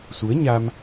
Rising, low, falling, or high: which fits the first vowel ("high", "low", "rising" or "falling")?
rising